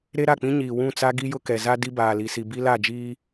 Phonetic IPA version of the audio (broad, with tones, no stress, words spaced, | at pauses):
ɾe˦ɾa˦˨k͡pĩ˦ɲiː˨ wũ˦˨t͡sa˦ ɡi˦jʊ˦kɛ˨za˦ di˦baː˨li˨si˨ bi˦la˦˨d͡ʒiː˦